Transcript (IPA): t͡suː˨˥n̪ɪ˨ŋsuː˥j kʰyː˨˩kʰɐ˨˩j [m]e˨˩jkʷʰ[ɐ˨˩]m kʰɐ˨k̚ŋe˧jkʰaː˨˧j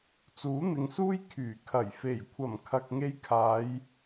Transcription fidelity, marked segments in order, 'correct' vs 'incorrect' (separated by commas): incorrect, correct